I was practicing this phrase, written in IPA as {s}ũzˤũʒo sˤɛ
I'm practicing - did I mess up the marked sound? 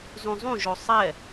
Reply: yes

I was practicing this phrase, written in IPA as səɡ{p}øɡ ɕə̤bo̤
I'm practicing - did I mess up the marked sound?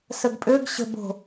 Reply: yes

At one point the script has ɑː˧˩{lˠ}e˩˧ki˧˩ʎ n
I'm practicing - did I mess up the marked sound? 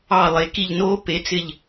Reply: no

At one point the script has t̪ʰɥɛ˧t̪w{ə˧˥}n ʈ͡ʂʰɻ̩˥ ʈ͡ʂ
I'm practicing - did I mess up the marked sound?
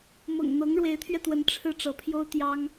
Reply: no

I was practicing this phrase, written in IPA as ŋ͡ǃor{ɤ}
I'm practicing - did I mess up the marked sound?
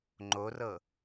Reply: no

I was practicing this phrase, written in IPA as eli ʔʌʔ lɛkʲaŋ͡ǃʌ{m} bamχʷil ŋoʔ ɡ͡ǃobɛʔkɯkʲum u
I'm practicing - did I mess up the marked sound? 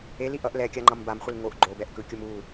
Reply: no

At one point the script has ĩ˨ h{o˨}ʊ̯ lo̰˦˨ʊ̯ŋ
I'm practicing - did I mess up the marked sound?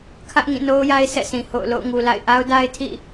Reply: yes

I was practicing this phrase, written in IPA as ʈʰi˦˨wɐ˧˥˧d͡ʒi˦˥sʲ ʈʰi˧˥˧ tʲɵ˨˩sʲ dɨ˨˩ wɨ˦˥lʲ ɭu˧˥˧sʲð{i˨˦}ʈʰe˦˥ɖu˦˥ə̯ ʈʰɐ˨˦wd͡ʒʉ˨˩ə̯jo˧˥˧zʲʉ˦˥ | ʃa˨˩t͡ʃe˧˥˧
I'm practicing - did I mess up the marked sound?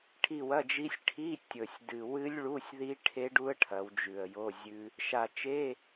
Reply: yes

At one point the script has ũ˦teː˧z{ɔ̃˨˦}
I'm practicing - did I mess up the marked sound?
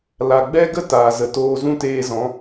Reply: no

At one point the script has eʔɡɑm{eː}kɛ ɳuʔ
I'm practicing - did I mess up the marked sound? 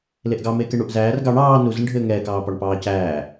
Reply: no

